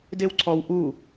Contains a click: yes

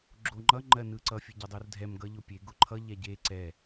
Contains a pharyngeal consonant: no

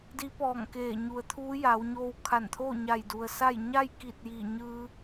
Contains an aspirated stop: yes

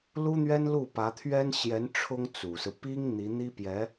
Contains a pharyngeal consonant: no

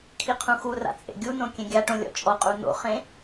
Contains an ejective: yes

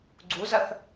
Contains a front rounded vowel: no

